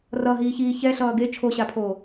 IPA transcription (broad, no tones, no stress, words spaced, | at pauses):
rʌɦiːçiː çɛɬʌː ɡe t͡ʃʰoɕapʰoː